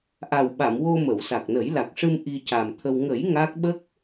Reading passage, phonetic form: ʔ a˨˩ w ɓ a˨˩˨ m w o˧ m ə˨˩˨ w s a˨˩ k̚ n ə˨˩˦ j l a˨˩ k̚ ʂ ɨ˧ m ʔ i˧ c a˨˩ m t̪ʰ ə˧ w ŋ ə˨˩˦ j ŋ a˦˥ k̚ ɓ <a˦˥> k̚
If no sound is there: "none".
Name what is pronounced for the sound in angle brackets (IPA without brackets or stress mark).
ə˦˥